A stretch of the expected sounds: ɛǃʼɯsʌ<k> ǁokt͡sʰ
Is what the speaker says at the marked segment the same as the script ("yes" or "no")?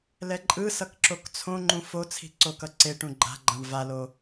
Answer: yes